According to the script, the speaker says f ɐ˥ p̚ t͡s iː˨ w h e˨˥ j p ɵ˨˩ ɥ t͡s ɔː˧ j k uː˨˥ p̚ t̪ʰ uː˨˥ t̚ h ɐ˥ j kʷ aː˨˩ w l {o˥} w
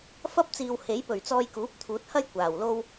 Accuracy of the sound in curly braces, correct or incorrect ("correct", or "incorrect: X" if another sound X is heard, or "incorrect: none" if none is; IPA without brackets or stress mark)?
correct